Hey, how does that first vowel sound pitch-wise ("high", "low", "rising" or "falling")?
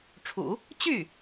low